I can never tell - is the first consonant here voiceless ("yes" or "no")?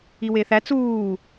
no